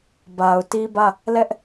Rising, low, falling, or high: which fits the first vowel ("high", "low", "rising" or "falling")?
low